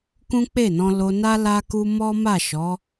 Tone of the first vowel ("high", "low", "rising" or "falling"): high